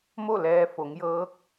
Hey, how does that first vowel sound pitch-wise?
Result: falling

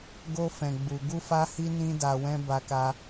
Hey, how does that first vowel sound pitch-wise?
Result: high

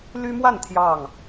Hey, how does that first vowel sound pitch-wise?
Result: high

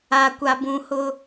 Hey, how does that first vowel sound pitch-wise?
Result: low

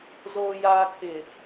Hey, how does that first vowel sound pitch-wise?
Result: low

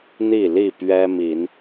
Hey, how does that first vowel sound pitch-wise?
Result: falling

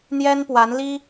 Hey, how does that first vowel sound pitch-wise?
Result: high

